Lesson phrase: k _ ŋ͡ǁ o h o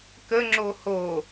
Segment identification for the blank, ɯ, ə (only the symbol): ə